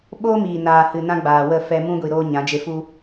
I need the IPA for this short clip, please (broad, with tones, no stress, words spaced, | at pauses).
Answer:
ɓoː˦miː˨naː˨hɨ˨ nã˦ɡ͡baː˨wə˦˨ fɛ˧mũ˦ɡʷi˨ ɾoː˦ɲã˨˦ d͡ʒe˧fu˦